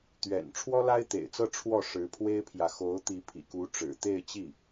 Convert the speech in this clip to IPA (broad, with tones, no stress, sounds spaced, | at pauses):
t̪ ɥ ɛ̰˨˩ n ʈ͡ʂʰ w ɔ˥ l a˥ ɪ̯ t̪ ḛ˨˩ ɪ̯ t͡s ɤ˥˧ ʈ͡ʂʰ w ɔ˥˩ ʂ ɻ̩˧˥ pʰ w e˥ ɪ̯ pʰ j ä˨ x o˧˥ ʊ̯ t̪ i˧˥ pʰ ḭ˨˩ k u˧˥ ʈ͡ʂ ɻ̩˨˩ t̪ e˥˧ ɪ̯ t͡ɕ i˥˩